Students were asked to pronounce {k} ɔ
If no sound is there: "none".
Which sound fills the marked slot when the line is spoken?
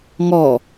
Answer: ŋ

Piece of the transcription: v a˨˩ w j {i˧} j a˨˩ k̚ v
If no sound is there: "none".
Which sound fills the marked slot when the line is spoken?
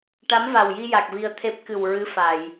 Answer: i˧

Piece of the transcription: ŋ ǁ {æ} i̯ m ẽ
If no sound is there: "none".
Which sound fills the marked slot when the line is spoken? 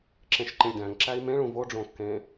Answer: æ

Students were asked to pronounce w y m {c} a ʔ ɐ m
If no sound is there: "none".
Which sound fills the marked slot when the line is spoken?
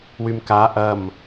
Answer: k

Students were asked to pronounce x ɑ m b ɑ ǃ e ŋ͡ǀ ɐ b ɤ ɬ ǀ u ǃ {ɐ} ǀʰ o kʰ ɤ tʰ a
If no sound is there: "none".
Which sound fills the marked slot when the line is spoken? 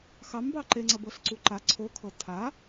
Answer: a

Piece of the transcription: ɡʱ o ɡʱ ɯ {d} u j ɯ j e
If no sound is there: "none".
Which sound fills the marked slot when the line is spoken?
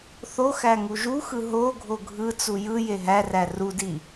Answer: t͡s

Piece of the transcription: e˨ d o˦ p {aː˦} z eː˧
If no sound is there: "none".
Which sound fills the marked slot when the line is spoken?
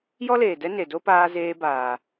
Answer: aː˧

